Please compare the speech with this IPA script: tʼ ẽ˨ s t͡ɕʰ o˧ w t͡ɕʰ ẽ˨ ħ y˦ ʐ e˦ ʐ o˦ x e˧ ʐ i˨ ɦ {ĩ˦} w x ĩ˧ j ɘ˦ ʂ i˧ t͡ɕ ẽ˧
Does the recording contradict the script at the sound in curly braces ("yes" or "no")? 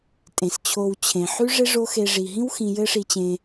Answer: no